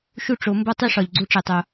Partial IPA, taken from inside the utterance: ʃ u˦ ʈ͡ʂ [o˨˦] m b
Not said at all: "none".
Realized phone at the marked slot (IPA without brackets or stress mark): o˨˦